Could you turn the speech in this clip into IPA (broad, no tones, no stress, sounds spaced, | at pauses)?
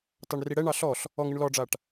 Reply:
t ɑ ɳ r i ɽ ɛ ɳ ɑ ɬ ɔ ɬ | ɔ ŋ ɨ ɳ l ɔ ɖ͡ʐ a ʈ